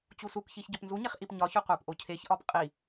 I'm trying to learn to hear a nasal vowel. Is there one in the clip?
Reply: no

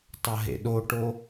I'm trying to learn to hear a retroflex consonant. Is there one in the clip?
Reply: yes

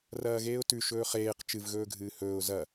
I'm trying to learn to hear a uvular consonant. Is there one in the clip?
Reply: yes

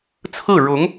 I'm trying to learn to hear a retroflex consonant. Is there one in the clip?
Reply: yes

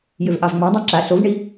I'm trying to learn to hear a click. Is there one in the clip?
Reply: yes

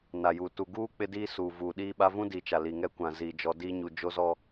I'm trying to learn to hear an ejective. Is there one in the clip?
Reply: no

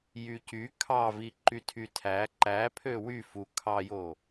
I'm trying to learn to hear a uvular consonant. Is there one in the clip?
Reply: no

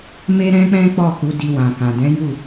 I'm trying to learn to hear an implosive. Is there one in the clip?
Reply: no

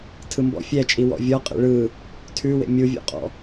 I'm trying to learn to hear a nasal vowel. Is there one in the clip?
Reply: no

